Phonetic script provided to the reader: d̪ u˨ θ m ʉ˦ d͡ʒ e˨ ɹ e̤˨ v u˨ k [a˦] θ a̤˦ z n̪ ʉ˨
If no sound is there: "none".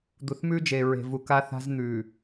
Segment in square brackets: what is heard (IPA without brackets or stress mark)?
a˦